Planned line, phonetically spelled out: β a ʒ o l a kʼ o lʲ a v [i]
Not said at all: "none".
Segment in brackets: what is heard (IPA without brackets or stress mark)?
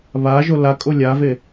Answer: e